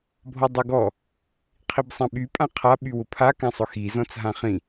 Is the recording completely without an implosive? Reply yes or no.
no